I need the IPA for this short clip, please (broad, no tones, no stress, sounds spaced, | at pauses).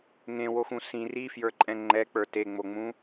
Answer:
ŋ ẽ w o x ũ s ĩ r i f j ə˞ ǃʼ ɛ̃ ŋ͡ǃ ɛ k͡p ə˞ t e ŋ͡m o ŋ͡m ũ